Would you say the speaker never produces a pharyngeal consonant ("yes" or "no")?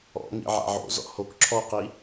no